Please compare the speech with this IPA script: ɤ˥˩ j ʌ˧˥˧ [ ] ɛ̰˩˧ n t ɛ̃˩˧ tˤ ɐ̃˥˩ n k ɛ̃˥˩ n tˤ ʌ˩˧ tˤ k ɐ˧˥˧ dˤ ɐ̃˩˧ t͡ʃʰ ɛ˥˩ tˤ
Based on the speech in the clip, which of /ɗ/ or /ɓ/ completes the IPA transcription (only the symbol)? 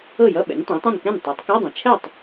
ɓ